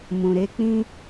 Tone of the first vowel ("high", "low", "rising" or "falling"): low